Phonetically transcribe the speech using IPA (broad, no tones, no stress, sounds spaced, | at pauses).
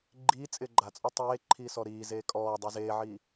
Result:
ɡ͡ǃ i t͡sʼ ɪː ɡ͡ǃ a t͡sʼ ɔ tˤ eː ǃʰ iː s ɔ ɾ iː z eː kʼ ɔː dˤ e z eː ʕ iː